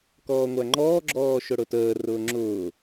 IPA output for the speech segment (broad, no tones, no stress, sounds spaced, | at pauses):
k ɔː ŋʷ æ ŋ͡ǃ ɔː ɡ͡ǁ ɔː ʃ ʊ ɽ ʊ t əː r ʊː ŋ͡ǁ ʊː